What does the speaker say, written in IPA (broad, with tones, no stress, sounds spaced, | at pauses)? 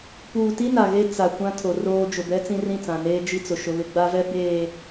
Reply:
p uː˨ t i˦ n a˨ ɣ e˦ t͡s a˨ kʷ ã˦ tʰ o˨ r oː˦ d͡ʒ ʊ˨ b ɛ˦ t͡s ĩ˦ r ĩ˦˨ t͡s ã˨ n eː˦ d͡ʒ i˦ t͡s ʊ˨ ʃ ʊ˦ β ɪ˦ ɡ͡b a˦ v ɛ˦ b eː˨